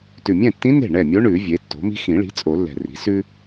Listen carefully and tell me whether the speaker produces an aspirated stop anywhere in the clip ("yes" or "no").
no